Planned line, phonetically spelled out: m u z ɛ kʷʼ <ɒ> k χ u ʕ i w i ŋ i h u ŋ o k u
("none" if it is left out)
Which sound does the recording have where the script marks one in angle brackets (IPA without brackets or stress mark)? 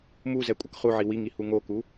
ʌ